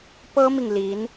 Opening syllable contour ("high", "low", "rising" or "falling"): high